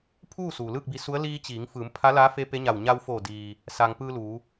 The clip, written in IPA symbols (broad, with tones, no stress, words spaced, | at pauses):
pʰuː˥˨ suː˩lɯː˥˨k̚bi˧su˧˥ə̯ liː˧ t͡ɕiː˩˧ŋ fɯː˩˧m pʰa˧˥laː˧˥fe˧˥ pe˧˥ɲa˧˩w ɲa˧wfoː˧˩ diː˩ | saː˩ŋpɯː˧ luː˩˧